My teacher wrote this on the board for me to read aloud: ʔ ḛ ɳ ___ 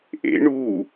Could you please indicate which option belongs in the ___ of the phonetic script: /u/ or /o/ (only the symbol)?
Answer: u